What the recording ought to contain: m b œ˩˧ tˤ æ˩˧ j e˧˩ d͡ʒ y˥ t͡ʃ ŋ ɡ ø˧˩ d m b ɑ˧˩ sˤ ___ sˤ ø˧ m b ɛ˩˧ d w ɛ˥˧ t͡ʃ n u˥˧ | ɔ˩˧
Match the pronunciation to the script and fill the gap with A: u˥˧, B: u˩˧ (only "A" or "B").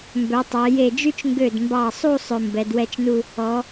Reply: A